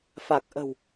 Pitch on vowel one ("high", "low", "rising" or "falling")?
low